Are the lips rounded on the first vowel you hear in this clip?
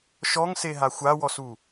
yes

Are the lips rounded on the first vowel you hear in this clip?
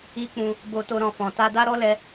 no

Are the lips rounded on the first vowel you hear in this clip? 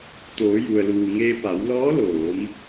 yes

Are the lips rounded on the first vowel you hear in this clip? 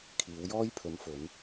no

